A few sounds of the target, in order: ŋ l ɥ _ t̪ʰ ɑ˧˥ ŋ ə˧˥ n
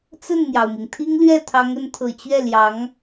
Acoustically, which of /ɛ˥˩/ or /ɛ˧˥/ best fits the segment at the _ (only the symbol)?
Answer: ɛ˥˩